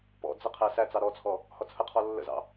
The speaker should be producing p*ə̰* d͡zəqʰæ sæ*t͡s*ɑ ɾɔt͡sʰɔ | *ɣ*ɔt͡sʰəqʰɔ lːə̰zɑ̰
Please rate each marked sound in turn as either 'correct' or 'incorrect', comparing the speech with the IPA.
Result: incorrect: ɔ̰, correct, incorrect: h

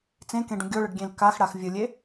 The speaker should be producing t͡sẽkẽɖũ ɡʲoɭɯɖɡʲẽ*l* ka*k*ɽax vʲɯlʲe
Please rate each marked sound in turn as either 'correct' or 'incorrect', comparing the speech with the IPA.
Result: correct, incorrect: x

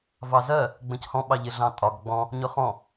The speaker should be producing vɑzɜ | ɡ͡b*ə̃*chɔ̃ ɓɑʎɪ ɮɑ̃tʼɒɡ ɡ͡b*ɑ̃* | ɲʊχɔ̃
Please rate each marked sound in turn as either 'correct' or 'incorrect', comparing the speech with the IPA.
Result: correct, incorrect: ɔ̃

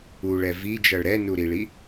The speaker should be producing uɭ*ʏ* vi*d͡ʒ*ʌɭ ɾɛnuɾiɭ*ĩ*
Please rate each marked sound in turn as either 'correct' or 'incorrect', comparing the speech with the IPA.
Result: incorrect: ɛ, correct, incorrect: i

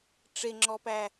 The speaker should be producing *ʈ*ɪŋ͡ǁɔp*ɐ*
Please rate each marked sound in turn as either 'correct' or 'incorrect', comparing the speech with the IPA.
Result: incorrect: ʈ͡ʂ, incorrect: æ

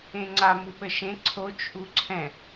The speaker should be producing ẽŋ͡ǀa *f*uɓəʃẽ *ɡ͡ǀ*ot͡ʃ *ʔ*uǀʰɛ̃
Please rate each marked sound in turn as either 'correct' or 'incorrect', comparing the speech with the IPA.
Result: incorrect: m, incorrect: ǀʰ, correct

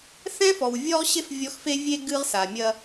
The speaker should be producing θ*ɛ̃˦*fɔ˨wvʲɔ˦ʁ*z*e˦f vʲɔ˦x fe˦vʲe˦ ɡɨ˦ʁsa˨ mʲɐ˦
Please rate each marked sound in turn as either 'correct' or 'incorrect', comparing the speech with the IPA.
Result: correct, incorrect: ɕ

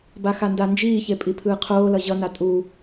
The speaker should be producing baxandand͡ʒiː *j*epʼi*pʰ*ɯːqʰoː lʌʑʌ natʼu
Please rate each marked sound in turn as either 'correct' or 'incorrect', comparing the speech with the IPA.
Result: incorrect: ç, correct

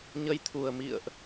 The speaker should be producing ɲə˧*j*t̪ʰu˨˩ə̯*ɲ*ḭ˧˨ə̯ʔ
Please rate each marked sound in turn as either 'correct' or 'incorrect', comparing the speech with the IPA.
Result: correct, incorrect: m

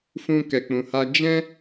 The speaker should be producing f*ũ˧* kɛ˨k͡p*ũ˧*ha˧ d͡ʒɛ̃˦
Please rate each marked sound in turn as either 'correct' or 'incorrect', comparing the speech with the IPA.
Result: correct, incorrect: ũ˨

